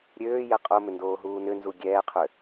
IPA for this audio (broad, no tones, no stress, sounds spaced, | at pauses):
ɾʲ øː j ɛ qʼ o m ʏ n d oː ɦ uː n ʏ n z u ɡʲ ɛː qʰ ʏ